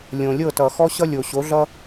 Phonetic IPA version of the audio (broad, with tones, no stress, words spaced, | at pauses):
lʲõ˨lʲɤ˦˨ tʌ˨xɔ˦ɕʌ˦ lʲo˨ ɕo˨˦ɮʌ˦